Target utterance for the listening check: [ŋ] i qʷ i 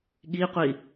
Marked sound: incorrect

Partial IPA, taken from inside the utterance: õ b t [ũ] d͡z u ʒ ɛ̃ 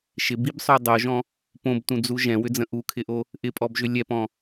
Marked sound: correct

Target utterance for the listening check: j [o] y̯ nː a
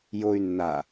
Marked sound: correct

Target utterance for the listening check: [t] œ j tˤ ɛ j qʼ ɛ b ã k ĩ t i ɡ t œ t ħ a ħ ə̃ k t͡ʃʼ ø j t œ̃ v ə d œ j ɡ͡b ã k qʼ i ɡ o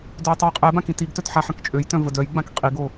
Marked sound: incorrect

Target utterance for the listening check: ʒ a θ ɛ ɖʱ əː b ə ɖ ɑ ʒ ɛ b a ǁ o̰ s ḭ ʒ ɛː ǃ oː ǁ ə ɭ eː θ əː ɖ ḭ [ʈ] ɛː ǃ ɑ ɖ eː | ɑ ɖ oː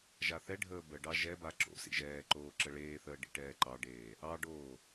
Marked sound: correct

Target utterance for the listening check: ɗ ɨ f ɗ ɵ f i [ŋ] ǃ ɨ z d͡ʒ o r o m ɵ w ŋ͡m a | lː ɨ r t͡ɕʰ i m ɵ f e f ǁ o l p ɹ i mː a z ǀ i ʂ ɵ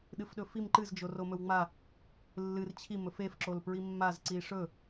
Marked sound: incorrect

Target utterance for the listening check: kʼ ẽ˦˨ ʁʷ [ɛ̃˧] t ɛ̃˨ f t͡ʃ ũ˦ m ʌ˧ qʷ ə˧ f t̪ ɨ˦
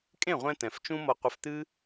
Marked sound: correct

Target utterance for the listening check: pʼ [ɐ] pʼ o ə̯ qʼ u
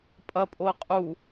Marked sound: correct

